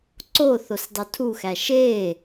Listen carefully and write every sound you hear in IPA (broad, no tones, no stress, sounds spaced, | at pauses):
ǀ o θ o s dˤ u tʰ u x æ ʃ e